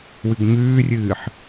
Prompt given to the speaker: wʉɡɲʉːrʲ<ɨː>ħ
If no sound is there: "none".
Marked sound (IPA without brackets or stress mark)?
ɨː